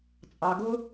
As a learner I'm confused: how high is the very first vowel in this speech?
low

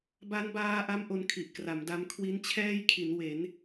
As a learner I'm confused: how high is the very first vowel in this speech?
low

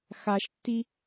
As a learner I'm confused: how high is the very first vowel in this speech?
low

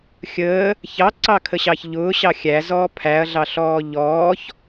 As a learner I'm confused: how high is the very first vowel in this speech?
mid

